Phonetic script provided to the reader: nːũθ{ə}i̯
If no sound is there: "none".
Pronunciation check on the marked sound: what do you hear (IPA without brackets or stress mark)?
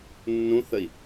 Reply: ə